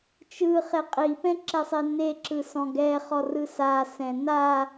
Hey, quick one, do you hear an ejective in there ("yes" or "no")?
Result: yes